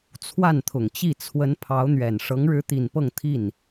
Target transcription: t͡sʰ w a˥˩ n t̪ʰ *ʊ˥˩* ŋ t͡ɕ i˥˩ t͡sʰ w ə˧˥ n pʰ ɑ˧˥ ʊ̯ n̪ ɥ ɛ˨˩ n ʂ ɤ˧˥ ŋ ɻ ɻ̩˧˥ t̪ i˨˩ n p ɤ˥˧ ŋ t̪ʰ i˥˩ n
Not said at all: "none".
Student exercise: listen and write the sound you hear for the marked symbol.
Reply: ʊ˨˩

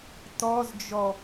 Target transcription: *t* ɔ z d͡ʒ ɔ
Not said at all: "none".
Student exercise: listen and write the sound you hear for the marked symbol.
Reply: t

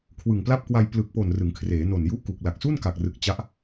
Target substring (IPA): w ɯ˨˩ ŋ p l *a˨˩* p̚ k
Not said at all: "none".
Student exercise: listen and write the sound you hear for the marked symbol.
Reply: a˥˩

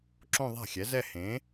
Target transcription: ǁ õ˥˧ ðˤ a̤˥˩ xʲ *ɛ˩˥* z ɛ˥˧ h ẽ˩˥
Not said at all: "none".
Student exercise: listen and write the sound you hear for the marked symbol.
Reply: ɛ˩˥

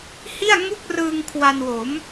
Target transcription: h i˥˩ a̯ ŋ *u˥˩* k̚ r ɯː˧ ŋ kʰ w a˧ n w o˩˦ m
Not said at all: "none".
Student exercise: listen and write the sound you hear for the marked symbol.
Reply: u˥˩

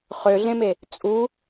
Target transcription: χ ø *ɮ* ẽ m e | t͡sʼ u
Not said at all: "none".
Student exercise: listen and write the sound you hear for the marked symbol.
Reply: ɮ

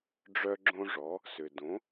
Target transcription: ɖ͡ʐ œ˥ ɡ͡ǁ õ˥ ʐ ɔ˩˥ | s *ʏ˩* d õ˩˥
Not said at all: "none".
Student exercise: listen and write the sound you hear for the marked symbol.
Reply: ʏ˩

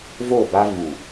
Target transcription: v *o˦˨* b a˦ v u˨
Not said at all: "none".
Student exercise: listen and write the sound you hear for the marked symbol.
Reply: o˦˨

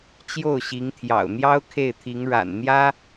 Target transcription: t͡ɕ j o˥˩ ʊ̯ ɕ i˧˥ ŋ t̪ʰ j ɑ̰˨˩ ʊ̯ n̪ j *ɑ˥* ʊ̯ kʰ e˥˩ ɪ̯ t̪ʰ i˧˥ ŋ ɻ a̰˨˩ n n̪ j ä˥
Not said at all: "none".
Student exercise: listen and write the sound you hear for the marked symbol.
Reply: ɑ˥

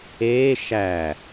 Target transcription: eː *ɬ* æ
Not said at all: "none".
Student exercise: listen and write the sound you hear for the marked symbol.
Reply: ʃ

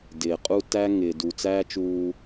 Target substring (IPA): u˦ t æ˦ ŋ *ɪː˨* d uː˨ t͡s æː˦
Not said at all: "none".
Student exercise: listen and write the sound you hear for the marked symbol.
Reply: ɪː˨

